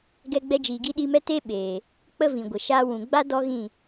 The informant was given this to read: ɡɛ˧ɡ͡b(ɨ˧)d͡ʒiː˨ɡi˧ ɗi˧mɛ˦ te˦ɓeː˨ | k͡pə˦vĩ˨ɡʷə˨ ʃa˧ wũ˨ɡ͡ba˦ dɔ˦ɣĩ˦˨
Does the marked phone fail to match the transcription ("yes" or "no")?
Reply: yes